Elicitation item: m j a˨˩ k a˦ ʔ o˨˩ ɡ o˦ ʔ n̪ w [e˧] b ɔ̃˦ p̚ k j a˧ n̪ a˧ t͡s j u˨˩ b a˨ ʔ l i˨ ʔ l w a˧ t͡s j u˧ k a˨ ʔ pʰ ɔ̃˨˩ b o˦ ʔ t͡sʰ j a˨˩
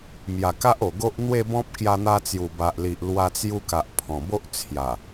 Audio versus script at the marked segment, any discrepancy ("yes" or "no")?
yes